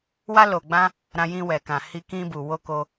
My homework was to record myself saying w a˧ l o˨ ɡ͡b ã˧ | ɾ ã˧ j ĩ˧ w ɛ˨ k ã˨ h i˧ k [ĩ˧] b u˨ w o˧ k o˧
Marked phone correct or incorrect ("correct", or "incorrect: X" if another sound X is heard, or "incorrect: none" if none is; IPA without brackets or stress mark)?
correct